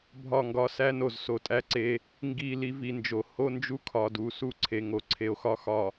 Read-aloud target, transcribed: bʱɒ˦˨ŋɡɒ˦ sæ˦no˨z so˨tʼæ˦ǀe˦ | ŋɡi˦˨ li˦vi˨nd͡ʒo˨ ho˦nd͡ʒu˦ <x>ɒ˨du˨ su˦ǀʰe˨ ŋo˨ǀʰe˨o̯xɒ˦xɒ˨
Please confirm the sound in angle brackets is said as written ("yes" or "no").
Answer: no